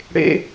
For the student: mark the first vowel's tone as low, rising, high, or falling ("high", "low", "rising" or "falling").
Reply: high